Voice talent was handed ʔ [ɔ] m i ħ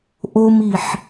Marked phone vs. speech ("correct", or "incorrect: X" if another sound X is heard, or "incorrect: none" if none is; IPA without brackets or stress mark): incorrect: o